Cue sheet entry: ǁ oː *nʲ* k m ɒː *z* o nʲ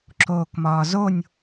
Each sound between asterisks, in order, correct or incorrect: incorrect, correct

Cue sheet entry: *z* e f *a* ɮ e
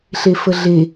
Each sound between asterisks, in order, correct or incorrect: incorrect, incorrect

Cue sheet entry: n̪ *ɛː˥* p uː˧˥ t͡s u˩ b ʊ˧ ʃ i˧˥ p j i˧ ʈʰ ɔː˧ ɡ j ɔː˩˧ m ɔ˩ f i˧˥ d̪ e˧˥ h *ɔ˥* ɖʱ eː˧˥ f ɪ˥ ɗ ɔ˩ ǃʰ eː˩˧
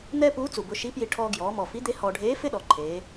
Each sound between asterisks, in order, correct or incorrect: correct, incorrect

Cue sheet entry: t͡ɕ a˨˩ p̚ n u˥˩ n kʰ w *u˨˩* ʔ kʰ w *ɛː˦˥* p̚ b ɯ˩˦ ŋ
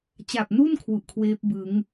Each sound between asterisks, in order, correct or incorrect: correct, incorrect

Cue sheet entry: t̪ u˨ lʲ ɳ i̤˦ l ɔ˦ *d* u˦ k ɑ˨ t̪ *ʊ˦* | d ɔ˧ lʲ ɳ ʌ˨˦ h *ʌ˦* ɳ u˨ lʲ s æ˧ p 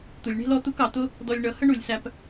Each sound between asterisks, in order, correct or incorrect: incorrect, correct, incorrect

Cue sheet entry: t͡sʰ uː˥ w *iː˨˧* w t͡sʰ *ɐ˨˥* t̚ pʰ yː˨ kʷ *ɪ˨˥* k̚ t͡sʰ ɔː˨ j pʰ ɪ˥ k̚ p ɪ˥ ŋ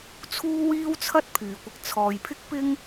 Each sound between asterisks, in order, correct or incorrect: incorrect, incorrect, incorrect

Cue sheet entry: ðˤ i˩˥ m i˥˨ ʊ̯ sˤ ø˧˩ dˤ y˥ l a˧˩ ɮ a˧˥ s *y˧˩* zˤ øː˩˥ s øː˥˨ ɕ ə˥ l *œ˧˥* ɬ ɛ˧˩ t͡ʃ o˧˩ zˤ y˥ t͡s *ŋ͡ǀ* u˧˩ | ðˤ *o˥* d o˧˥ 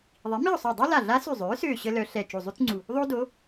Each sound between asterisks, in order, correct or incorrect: correct, correct, correct, correct

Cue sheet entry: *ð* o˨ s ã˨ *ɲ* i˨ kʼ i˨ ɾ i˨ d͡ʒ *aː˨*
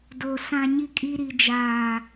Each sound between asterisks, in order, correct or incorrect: incorrect, correct, correct

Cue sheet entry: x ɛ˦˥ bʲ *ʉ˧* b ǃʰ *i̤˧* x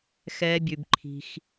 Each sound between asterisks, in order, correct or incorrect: correct, correct

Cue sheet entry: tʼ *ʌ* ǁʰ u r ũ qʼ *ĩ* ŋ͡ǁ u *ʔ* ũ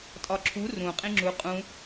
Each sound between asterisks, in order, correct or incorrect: incorrect, correct, incorrect

